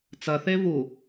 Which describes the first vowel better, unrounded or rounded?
unrounded